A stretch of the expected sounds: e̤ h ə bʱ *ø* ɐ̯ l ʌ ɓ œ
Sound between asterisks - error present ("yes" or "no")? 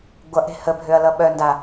no